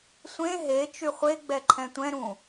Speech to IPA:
sʷẽ ɦe t͡ʃyχʷeɡ͡bɛ ǃʰɛ̃tʷɛ̃ɾũ

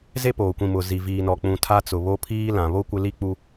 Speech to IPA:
ze˦poː˨kʷĩ˨mʊ˨ zi˨viː˨nɔ˨k͡pũ˨ tʰa˦t͡sʊ˨ βo˦pʰiː˦ lã˨βo˦ kʷɪ˦li˦k͡pu˦

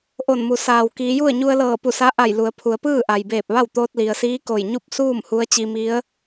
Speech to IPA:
ʔo˧˩nmu˩ saː˩wkiː˩˧ju˥˨ə̯ ɲu˧ə̯lɤː˧˩pu˧˩ sa˧˥ʔa˧˩j lu˩˧ə̯pʰu˩˧ə̯ pɯː˥˨ʔa˩jbeː˧˩p̚ʋa˥˨w t̪oː˧t̚li˩ə̯siː˧˥ ko˧˩jɲu˥˨p̚suː˥˨m hu˧˥ə̯t͡ɕi˧mi˧˥ə̯

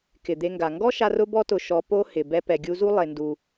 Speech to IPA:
kɪ˨d̪e˧ŋɡa˨ ŋɡɔ˦ʃa˧r ʊ˦bɔ˦tʊ˧ ʃɔ˧po˦ hɪ˨ bɛ˧pɛ˨ɡʲu˧zu˦ lˠe˧ndu˧

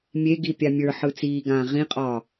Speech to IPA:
mʲeɡi pʲamʲə˞ħɯ t͡siːɡãː ʁĩqʼɒː

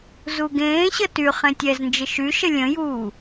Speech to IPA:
zuɡẽːɕə ty χẽtʲɛznd͡ʒə ʃyʃə lʲə̃juː

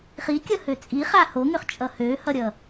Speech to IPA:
χikʲʌhø t͡sʼiχa hoŋøχt͡ʃʼʌ høhʌɾʲʌ

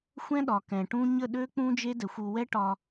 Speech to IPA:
xʷɛ̃˦ɗɒ˨ kɛ̃˨ʈũ˦ ɲə˦˨ɗø˦k͡pũ˦ d͡ʒe˦dɛ˨xʷ u˨wɛ˦ ʈɒ˦

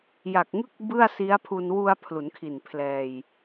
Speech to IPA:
ja˨˩k̚ŋɯ˥˩k̚ bɯ˥˩a̯si˦˥a̯pʰu˧n wu˧a̯ pʰlu˩˦nkʰi˨˩n pʰlɛː˧j

